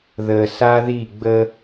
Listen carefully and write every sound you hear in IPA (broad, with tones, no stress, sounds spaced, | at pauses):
ð əː˨ s a˦ ð i˦˨ ɡ͡b ə˦